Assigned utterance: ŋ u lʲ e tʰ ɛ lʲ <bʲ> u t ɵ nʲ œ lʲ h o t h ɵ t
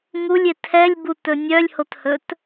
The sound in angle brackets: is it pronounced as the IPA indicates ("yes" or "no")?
no